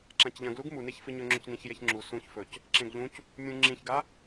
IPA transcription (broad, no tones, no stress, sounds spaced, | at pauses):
ǁ ã c ʎ ɐ̃ ɡ l u ɡ m u n e ç f ɨ ɲ ɵ ŋ͡ǁ ɵ c n ĩ ç j e ç ŋ͡ǁ u s ũ ç f ɵ c | ǁ ẽ ɡ ʎ ũ c | mʲ ũ ŋ͡ǁ ĩ ç ɡ a